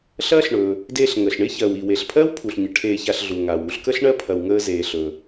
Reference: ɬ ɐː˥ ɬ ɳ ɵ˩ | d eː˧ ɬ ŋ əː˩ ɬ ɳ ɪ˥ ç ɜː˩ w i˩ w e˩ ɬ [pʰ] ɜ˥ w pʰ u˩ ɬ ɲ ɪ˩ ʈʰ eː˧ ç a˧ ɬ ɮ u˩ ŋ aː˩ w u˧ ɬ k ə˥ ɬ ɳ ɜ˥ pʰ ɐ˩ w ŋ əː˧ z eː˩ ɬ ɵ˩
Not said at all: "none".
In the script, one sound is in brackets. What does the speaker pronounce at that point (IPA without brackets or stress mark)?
pʰ